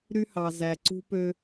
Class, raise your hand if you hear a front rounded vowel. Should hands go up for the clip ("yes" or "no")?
yes